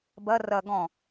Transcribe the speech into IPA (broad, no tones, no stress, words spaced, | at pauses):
bɐ rɐ ɡɔ̃